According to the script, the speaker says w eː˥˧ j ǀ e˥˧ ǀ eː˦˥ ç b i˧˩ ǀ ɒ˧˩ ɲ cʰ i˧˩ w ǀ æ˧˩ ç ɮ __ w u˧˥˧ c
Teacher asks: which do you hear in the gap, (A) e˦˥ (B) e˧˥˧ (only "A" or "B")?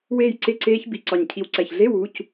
B